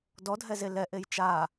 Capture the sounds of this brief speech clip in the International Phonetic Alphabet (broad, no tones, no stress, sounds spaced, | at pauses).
d ɔ dʱ ɛ z e l ɛ ʔ e j t͡ʃ a